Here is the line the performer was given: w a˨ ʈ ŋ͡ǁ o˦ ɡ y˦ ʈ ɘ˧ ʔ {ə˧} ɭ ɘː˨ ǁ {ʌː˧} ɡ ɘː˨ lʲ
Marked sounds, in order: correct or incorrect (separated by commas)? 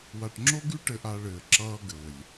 incorrect, correct